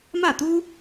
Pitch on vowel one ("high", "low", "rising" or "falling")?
falling